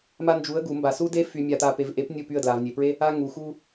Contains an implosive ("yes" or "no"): no